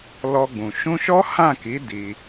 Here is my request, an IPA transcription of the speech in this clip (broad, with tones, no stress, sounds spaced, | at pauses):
l ɔ˧ ɡ͡b ũ˨ ʃ ũ˧ ʃ ɔ˦ h ã˦˨ k i˨˦ d i˧